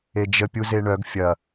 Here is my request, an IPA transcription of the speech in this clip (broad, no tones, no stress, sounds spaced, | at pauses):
e d͡ʒ ə pʲ u z e ɳ œ ɡ fʲ ɐ